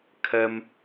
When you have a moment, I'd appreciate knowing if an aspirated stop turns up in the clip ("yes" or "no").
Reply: yes